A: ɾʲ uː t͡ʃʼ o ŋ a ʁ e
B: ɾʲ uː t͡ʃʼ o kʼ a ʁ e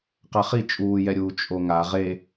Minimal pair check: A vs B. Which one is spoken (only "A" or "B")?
A